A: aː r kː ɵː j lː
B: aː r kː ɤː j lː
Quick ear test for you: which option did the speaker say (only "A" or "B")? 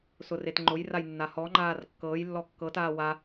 B